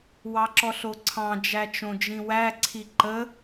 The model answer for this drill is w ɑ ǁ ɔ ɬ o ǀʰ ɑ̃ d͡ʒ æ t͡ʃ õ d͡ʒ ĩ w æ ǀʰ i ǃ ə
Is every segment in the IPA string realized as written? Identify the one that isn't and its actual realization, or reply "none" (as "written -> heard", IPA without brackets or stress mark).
none